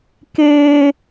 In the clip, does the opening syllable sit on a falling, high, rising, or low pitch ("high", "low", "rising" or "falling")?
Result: high